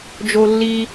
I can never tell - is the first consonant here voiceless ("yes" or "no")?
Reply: no